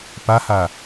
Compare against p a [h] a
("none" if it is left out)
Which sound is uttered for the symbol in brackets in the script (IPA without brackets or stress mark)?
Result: h